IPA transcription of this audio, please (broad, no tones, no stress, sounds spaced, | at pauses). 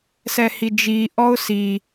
s ɛ h i d͡ʒ i ʔ ɔ ʊ̯ s i